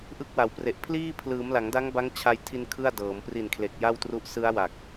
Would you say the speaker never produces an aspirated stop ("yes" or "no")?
no